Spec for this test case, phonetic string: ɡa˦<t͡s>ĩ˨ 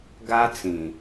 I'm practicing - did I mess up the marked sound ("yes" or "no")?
no